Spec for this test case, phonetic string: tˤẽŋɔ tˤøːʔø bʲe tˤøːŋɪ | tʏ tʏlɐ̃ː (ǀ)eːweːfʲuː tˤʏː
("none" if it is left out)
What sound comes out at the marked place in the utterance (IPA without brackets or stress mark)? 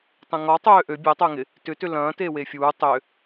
t